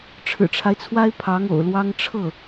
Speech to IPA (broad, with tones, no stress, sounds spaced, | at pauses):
ʈ͡ʂʰ ɻ̩˨˩ ʈ͡ʂʰ a˦ ɪ̯ t͡sʰ w a˥ ɪ̯ pʰ ɑ˧˥ ŋ o̰˨˩ ʊ̯ l w ɑ˥ ŋ ʈ͡ʂʰ ɤ˥˩